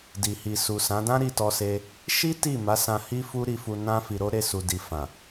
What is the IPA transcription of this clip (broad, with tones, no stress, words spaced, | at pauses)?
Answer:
di˨hi˨su˨sã˨˦ dã˦ɾi˧tɔ˧se˧ | ʃi˦ ti˦˨ ma˨˦sã˧hi˦ fu˦ɾi˧fu˧ nã˦fi˧ɾo˦ ɾe˦˨ su˨di˨ fã˨